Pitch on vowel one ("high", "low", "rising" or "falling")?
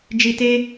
high